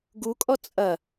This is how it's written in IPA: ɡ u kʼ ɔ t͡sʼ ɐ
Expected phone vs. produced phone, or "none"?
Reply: none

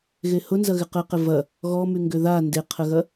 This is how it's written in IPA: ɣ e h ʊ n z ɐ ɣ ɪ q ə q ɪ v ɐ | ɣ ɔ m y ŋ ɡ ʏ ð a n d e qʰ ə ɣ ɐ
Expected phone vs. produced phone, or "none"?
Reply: none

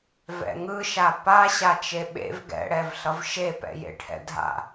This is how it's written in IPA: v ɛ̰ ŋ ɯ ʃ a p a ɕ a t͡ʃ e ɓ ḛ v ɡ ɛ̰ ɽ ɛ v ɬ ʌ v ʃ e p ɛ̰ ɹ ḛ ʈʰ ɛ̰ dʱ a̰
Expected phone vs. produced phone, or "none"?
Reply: ɹ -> j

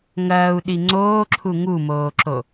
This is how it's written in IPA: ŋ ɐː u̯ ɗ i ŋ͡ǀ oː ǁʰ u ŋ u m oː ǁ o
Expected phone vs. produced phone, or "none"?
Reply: none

